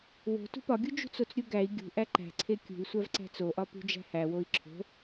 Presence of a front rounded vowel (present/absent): absent